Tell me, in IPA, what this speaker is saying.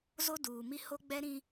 z o˦ d uː˨ m i˦ h o˦ ɡ͡b ɛ˦ ɾ ĩ˦

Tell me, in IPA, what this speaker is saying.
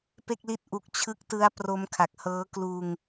p e˥˩ k̚ l i˥˩ t̚ ʔ u˦˥ k̚ t͡ɕʰ ɯ˦˥ k̚ t ɯ˦˥ a̯ p r o˦˥ m kʰ a˨˩ k̚ h ɤː˦˥ k l uː˧ ŋ

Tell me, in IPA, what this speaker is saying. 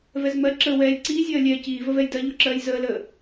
v ɛ z m ɜ ǁ əː w ɛː lʲ ǀ iː zʲ ɜː lʲ ɛː c iː v ə v ɛ j d ɜ ʎ o ǁ ɜː j z əː l əː

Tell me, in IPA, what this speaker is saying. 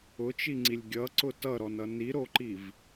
ʊ t͡ʃ i ŋ͡ǀ i lʲ ɡʲ ʌ ǀ ʊ t ʌ ɾ ɔ n ʌ n i ɾ o ǃ i v

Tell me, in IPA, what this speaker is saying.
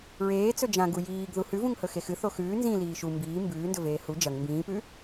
ɹ eː t͡s ɵ d͡ʒ ã ɡ u j iː ɡ ð u h ʉ v ũ ŋ h ɵ x e x ɨ θ o x ʉː n z ĩ l iː ʃ u m b iː m b ʉː n d ɵ v eː h u d͡ʒ ɐ ŋ m b ĩː p ʉ

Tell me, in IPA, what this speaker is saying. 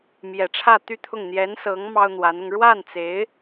m j ɛ˨˩ ʈ͡ʂʰ ä˥˧ t̪ y˥˧ t̪ʰ ʊ˥˩ ŋ n̪ j ɛ˧˥ n s ɤ˧˥ ŋ m ɑ˥ ʊ̯ n̪ w a˧˥ n ʊ˧ ŋ ɻ w a˥˩ n t͡s e˧˥ ɪ̯

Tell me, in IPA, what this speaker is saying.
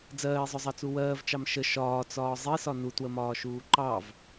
d͡z ɜː e̯ zˤ ʊ zˤ ɑ t͡s u w ɜː v t͡ʃ ɑ m ʃ ə ʃ ɒː t͡s ɒː zˤ i s ɒ n u t w ə m ɒː ʃ uː ǃ ɑ v

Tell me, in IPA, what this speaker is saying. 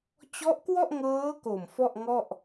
t͡ɕ ɔ˦˥ ʔ k w ɔ˥˩ ʔ ŋ ɤː˦˥ k o˨˩ m f ɔ˥˩ ʔ ŋ ɔ˥˩ ʔ

